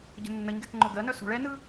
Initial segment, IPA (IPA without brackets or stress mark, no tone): ɟ